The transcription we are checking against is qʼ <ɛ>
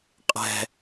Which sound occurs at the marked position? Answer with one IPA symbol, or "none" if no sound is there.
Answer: ɛ̤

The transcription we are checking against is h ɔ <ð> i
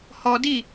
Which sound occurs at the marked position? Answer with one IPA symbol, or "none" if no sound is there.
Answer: d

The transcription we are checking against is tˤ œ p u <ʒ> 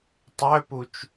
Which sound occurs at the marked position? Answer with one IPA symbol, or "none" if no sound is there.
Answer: t͡ʃ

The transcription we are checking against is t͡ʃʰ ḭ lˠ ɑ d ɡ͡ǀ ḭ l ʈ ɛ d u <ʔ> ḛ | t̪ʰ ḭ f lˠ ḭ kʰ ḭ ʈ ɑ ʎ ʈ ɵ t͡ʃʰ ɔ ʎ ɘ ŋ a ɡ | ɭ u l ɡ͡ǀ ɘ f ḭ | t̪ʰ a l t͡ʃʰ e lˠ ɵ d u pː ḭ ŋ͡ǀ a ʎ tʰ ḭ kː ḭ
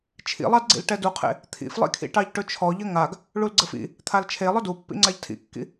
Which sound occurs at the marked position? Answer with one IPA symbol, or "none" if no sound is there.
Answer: qʰ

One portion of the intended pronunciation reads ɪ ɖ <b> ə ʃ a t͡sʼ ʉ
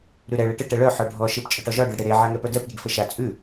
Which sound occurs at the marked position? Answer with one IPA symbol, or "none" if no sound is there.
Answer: f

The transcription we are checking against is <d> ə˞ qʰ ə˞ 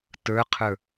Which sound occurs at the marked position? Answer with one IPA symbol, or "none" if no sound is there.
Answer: t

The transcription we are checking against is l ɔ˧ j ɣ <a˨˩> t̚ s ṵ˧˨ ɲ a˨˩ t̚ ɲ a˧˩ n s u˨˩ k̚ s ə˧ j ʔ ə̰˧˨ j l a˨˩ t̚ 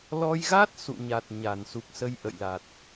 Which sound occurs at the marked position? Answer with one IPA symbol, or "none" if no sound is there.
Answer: a˦˥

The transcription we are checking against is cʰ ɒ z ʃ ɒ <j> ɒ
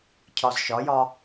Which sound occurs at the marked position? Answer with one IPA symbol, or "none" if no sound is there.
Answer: j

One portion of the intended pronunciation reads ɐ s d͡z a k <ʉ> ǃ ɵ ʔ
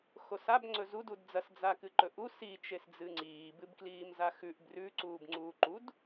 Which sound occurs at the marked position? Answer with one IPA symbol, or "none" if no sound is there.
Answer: ɨ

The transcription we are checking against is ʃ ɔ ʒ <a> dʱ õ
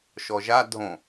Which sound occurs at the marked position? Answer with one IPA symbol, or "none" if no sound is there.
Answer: a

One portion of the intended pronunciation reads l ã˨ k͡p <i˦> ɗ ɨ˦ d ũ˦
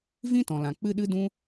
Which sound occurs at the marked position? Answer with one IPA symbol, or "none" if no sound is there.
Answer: ɨ˦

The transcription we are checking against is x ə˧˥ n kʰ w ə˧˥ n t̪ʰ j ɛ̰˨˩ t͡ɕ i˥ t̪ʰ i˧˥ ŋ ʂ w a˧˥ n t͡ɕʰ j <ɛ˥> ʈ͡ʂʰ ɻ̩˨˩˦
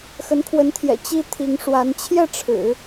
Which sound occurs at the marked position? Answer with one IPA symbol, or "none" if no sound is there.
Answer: ɛ˥˩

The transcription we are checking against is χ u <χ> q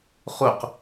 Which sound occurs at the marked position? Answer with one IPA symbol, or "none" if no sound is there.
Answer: none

